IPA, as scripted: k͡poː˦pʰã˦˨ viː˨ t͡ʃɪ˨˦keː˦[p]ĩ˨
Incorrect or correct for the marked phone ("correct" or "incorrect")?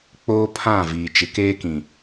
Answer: incorrect